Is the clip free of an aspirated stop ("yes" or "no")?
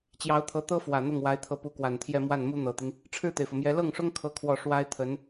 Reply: no